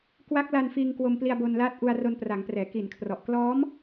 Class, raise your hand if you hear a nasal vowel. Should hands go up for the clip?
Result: no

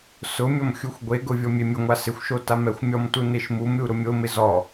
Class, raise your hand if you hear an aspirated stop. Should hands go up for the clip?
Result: no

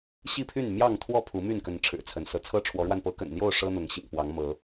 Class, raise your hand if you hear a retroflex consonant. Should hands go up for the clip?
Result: yes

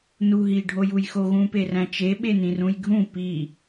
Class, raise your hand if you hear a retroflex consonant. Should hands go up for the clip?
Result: yes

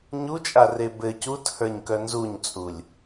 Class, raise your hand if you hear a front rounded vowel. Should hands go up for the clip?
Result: yes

